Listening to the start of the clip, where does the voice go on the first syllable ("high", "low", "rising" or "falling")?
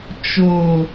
low